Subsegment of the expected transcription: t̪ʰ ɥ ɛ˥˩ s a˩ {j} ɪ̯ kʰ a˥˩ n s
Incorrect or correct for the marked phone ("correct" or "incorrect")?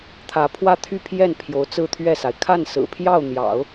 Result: incorrect